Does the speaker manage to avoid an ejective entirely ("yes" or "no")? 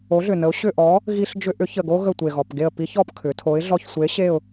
yes